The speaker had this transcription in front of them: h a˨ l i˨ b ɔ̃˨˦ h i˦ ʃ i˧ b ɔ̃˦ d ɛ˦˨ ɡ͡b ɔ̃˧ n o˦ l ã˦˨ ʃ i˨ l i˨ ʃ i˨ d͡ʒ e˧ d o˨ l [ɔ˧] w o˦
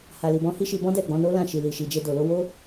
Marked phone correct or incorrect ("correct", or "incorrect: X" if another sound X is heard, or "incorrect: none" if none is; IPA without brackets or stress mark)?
incorrect: o˧